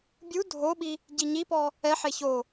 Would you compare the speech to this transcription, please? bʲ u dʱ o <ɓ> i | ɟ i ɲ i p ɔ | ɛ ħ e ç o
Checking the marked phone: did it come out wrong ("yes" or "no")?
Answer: no